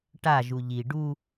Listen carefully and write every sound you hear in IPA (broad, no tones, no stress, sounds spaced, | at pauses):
ʈ a ʒ u ʎ i ɖ u